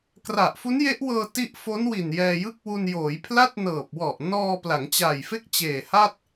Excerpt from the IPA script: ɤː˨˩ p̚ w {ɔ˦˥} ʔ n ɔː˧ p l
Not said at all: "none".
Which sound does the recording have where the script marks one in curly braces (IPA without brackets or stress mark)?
ɔ˨˩